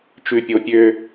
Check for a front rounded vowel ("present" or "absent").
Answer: present